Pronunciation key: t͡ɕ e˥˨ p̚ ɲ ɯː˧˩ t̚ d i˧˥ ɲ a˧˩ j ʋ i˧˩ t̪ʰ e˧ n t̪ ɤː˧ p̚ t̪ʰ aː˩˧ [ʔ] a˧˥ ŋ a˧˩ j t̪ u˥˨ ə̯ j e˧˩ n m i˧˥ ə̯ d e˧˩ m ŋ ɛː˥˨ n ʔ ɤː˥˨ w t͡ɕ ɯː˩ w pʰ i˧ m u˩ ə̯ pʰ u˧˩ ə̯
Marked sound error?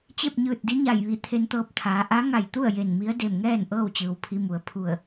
no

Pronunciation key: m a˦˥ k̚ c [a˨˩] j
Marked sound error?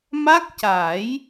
yes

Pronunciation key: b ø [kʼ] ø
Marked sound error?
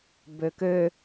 yes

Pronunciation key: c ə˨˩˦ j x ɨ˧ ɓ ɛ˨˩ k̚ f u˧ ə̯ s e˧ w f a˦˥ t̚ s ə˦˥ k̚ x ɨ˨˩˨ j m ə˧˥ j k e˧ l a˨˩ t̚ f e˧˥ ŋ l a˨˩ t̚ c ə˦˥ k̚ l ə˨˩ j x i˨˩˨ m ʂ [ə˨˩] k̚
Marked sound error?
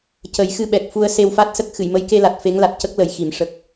no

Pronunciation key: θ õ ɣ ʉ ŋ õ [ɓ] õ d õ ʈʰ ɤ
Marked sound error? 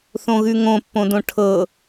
yes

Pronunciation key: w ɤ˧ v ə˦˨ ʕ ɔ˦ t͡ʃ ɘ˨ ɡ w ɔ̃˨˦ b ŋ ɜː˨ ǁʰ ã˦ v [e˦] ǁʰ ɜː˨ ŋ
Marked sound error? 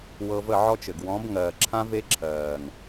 no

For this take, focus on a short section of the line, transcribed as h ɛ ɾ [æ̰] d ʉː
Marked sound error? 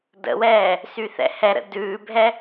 yes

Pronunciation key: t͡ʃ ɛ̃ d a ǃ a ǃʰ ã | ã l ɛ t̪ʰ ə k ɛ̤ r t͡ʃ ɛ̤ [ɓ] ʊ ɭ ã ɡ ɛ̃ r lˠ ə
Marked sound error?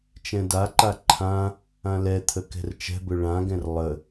yes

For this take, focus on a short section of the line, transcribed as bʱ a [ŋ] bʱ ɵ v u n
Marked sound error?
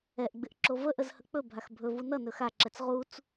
yes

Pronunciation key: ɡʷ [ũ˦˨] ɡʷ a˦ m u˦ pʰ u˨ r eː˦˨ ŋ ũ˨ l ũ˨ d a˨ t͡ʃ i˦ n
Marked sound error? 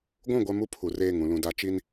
no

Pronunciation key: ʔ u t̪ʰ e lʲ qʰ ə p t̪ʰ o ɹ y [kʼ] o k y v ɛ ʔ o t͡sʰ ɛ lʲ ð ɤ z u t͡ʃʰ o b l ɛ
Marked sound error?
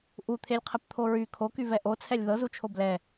yes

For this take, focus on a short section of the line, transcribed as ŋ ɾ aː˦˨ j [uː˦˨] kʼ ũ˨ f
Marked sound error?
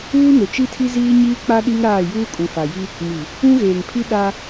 yes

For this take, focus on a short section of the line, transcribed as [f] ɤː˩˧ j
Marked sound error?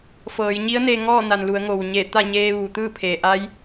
no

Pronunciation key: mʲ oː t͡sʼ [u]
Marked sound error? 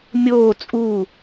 no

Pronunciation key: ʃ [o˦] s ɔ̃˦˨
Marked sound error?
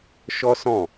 yes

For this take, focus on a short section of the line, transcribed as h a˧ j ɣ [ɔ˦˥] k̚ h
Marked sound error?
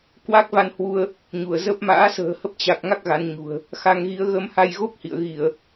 yes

